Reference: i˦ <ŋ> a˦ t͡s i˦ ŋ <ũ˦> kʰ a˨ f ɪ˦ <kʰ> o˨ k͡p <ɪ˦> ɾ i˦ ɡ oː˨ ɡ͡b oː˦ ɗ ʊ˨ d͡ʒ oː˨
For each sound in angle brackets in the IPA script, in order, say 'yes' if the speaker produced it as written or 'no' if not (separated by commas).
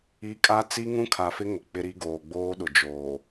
no, yes, no, yes